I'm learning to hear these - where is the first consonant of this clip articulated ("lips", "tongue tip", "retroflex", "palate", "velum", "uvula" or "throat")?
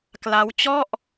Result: velum